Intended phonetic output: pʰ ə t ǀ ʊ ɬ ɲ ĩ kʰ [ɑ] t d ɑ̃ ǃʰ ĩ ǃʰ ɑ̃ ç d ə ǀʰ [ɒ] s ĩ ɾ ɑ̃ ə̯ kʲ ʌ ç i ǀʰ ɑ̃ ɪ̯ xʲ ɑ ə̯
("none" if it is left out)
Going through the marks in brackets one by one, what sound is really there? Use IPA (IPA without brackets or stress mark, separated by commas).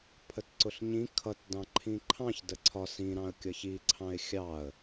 ʌ, ɒ